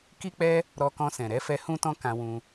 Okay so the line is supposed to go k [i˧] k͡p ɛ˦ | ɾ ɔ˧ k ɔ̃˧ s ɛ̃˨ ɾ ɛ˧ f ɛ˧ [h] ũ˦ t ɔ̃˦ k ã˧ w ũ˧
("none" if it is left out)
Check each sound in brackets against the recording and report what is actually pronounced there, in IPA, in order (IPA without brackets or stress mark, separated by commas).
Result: i˦, h